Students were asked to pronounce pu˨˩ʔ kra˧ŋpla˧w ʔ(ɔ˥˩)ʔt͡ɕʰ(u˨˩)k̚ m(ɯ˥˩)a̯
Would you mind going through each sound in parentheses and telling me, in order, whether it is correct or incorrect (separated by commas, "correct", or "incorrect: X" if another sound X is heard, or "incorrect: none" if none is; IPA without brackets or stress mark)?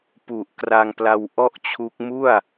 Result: correct, incorrect: u˦˥, incorrect: u˥˩